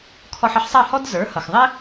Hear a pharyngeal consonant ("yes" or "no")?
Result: yes